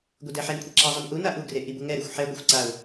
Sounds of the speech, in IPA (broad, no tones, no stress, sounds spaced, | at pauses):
ɡʷ e d ɛ ħ ɛ n kʷʰ i ǁ a zˤ ʌ n ʔ u n a ʔ u ɡ r e ʔ i b u ŋ ɛ ɾ e xʷ ħ ɛ ɡʷ ɯ xʷ ǀ a ʊ̯